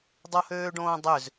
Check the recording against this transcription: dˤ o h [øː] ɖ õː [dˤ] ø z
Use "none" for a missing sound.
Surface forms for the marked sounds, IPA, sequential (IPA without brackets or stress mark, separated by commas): øː, dˤ